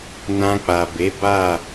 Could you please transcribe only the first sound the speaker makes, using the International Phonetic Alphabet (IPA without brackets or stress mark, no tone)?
n